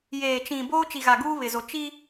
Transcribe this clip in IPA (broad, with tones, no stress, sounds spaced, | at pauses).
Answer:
j eː˨ t͡ʃ ĩ˨ b oː˦ t͡ʃ i˨ ɣ a˨ ɡ uː˦ β ɪ˨ z o˨ t͡ʃ i˦